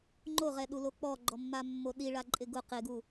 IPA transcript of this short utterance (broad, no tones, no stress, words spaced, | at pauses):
ŋ͡ǃoʁɛɗulo k͡pɔɡ͡ǃɔmːamːo ɗiɭaǃʼɪ ɡʊ qɪɡu